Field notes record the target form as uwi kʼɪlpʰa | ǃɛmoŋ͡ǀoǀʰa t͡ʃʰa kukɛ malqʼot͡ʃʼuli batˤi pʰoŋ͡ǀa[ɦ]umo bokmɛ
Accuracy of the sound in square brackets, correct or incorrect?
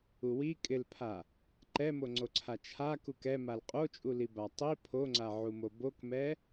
incorrect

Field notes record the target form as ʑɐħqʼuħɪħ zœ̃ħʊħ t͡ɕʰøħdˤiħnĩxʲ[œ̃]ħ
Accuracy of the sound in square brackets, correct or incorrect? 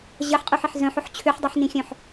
correct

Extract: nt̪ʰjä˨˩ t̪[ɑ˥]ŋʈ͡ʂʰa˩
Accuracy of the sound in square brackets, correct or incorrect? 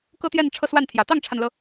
incorrect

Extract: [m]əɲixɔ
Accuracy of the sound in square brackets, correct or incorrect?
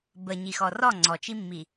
incorrect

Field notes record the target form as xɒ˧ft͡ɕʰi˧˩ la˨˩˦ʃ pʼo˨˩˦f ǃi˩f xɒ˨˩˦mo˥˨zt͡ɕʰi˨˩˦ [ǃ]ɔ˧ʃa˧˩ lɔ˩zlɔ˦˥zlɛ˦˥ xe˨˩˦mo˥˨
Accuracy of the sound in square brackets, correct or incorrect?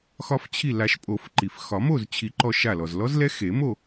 correct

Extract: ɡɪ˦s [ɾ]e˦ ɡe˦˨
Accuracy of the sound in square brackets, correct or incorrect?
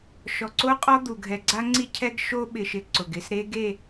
correct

